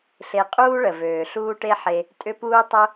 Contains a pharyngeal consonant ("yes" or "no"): yes